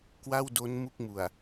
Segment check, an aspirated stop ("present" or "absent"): absent